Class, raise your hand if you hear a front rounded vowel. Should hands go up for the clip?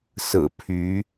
yes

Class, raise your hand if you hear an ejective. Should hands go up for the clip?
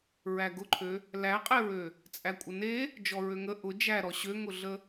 yes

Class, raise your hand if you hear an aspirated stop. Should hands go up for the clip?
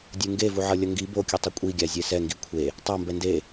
yes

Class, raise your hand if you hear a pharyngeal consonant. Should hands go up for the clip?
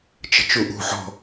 yes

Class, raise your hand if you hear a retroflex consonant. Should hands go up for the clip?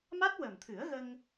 no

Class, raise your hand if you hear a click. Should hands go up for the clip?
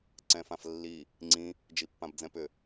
yes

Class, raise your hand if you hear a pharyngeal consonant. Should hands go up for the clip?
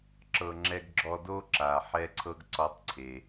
yes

